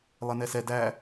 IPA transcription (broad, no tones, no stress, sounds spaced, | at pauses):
lˠ e n ɛ s ɛ d æ